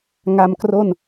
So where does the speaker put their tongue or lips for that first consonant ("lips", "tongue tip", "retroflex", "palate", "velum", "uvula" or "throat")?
velum